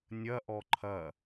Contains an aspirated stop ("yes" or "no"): yes